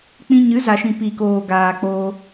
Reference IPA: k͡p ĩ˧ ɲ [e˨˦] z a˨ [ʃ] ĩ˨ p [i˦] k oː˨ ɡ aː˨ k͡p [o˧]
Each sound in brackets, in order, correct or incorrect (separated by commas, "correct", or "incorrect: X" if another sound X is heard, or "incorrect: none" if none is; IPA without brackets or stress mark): incorrect: ɨ˨˦, correct, incorrect: i˨, incorrect: oː˧